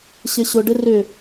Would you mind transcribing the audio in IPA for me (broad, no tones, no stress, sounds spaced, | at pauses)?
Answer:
ɕ ɪ ɕ ʊ ɖ ɪ r ʏ